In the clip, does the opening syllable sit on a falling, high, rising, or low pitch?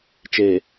low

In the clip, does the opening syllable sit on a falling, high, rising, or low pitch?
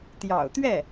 low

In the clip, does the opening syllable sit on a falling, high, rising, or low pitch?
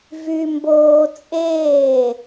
high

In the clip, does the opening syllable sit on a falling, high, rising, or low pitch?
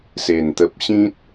low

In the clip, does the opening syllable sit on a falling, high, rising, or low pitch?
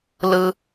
high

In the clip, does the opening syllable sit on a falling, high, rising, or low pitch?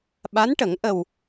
rising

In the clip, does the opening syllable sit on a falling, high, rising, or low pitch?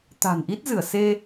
low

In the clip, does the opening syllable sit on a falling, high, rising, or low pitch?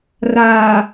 low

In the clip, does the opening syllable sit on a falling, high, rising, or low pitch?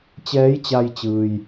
rising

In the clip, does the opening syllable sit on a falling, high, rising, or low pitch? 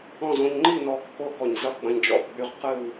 falling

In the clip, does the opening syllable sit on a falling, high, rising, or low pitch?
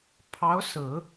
rising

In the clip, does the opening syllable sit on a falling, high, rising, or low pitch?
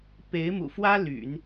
rising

